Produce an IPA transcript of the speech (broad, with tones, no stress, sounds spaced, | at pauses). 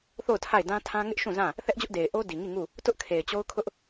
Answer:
θ o˦˨ ʊ̯ tʰ a˦˨ ɪ̯ d ã˦ tʰ ã˦ ŋ ɪ˦ ʔ ʃ ũ˦˨ z ã˦˨ | θ ɛ˦ ʔ d͡ʑ ʊ˦ ʔ d e˨ ɪ̯ ʔ o˦ d i˨ ŋ i˦˨ ŋ u˦˨ | t ʊ˦ ʔ kʰ e˨ ɪ̯ t͡ɕ o˦ ʊ̯ kʰ ʊ˦ ʔ